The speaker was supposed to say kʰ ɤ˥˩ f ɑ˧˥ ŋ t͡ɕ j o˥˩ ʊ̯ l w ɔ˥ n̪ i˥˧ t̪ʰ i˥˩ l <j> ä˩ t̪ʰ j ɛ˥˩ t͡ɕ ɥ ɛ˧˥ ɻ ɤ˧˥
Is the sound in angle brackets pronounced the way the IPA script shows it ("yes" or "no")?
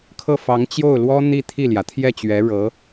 yes